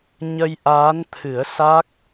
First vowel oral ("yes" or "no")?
yes